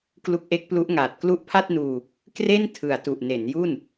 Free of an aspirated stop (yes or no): no